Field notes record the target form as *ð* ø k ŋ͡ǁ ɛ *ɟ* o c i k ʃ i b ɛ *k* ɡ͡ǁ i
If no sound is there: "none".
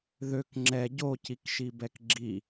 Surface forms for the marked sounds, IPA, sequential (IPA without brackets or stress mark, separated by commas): ð, ɟ, k